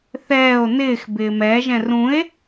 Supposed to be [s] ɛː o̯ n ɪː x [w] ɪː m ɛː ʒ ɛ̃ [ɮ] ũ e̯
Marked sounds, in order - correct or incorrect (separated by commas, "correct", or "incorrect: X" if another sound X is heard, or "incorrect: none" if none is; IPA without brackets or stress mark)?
incorrect: θ, incorrect: b, incorrect: r